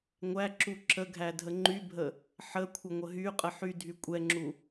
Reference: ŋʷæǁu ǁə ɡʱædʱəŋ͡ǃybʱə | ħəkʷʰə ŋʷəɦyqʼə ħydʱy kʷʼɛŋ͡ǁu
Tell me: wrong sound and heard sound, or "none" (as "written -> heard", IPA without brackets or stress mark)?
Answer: none